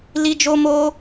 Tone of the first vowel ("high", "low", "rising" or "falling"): high